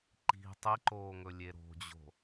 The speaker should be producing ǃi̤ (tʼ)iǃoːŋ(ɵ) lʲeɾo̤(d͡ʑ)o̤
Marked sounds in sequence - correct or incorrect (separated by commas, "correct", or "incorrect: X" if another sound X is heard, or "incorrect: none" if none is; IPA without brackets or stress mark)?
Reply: incorrect: tˤ, correct, correct